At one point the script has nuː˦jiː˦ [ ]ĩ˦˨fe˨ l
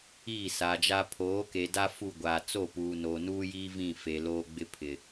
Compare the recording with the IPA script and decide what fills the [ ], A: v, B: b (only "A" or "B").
A